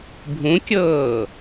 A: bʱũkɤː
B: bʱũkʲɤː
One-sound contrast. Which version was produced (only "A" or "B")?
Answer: B